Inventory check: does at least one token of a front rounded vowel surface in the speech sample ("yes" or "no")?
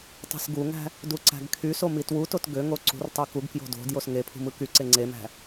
yes